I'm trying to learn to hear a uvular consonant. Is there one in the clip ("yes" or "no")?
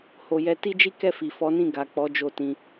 no